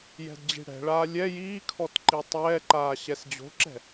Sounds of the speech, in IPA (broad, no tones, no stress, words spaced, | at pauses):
jɛ̤dd͡ʑi̤ɽɛ̤ɭaː lʲɛ jiːkʰɔt ǃitˤɛːǃaː ɕɛsd͡ʑo̤ǁɛ̤